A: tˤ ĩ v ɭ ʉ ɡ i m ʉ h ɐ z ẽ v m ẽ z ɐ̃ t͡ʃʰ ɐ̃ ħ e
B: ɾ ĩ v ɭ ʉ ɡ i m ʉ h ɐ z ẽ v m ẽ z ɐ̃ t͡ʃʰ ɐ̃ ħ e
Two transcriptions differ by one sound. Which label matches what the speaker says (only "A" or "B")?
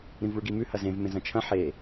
B